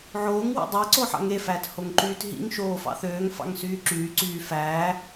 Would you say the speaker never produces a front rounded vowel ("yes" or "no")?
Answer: no